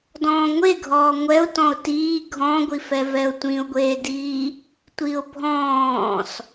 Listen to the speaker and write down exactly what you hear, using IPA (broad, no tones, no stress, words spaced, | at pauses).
dɔ̃ːŋʷe ɡʱɔːŋʷɛʊ̯tɔ̃ʊ̯ tiː ɡʱɔ̃ɡʷifɛ vɛʊ̯tʷĩʊ̯ɡʷeːdiː | tʷiʊ̯bʱɔ̃ːs